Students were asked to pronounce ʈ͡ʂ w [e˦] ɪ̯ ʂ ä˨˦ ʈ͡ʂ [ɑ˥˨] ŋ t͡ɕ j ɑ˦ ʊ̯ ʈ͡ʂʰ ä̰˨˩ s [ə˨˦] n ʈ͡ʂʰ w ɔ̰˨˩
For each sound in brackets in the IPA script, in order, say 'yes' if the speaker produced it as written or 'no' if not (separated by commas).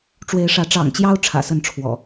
no, no, no